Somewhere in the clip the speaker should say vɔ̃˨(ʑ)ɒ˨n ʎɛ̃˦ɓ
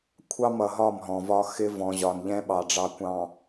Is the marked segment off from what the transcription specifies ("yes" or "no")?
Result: no